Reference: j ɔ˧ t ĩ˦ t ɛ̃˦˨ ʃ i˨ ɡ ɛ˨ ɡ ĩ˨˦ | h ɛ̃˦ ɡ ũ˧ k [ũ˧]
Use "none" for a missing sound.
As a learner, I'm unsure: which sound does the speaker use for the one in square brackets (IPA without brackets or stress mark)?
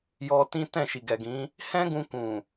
ũ˨